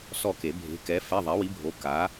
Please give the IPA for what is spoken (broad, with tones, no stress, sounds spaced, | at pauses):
s ɔ˦˨ k e˨˩˦ bʱ e̤˨˥ k ɛ˨˥ f ɛ˧˥˧ ðˤ ɛ˨˥ w i˨˥ bʱ o˨˥ k a˨˥